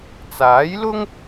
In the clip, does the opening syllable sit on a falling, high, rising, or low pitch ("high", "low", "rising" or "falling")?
rising